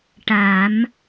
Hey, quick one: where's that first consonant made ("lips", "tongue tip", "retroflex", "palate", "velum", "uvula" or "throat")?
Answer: retroflex